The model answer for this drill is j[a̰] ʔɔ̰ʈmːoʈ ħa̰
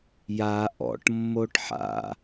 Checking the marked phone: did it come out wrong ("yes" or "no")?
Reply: yes